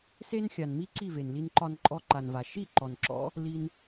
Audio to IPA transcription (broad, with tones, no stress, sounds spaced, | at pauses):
s e˦ n xʲ a˨ n m i˦ ǀ i˦˨ v e˨ n l i˧ n ǃ ɒ˧ n ǃʼ ɔ˧ ǃ a˨ n v a˨ ʃ i˦˨ ǃ ɔ˨ n ǁ ɔ̰˦ | l i˧ n